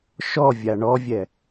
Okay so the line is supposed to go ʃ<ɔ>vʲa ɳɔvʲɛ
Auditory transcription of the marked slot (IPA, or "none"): ɔ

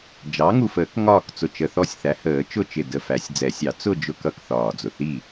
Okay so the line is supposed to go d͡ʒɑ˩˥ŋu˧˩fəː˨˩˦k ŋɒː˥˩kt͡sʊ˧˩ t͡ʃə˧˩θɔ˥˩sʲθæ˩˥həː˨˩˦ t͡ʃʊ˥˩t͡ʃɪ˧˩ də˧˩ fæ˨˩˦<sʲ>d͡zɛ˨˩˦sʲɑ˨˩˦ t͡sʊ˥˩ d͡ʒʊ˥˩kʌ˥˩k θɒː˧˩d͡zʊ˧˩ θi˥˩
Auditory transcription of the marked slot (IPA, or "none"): sʲ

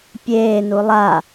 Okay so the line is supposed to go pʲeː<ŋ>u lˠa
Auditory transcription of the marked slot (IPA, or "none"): n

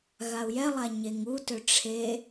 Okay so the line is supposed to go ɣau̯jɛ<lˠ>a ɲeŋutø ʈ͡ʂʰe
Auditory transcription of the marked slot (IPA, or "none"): lˠ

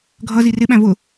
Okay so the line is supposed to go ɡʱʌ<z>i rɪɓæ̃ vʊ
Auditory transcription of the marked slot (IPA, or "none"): z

